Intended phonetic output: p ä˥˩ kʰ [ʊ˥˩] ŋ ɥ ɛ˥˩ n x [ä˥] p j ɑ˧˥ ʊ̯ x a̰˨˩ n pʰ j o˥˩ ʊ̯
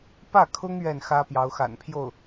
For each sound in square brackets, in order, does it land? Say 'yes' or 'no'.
no, yes

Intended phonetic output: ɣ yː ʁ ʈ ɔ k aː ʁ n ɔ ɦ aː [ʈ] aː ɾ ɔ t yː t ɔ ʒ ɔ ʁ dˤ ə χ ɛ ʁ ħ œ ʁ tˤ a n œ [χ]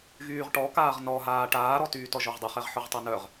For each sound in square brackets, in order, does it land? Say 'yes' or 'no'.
yes, no

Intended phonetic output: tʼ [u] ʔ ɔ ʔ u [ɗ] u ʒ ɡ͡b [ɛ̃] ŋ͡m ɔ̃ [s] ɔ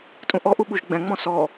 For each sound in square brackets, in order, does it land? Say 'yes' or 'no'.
no, no, yes, yes

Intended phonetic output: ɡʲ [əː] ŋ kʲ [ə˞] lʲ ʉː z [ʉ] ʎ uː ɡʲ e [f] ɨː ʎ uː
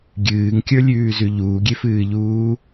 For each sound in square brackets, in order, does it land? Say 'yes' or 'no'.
no, yes, yes, yes

